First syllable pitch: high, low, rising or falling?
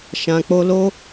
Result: low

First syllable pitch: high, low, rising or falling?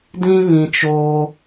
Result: high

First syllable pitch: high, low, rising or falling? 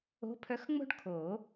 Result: rising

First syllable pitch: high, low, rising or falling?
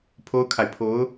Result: high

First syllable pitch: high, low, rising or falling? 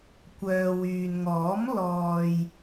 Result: low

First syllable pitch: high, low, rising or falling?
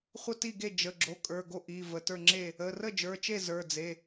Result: falling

